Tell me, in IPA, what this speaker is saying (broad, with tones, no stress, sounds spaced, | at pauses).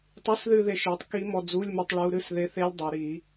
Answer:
tˤ i˧˥˧ s ð ɨ˦˨ ð e˦˨ ʃ e˨˦ tˤ k i˦˥ m ɔ˦˨ d͡z u˧˥˧ lʲ m ɨ˦˨ tˤ ɭ u˦˥ ɾ ɨ˧˥˧ s ð e˧˥˧ θ e˦˥ lʲ dˤ o˨˦ ɾ i˨˦